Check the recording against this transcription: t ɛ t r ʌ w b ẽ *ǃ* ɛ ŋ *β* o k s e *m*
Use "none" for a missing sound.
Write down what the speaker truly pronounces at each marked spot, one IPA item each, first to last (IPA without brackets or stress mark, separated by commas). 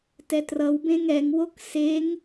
ŋ, w, ŋ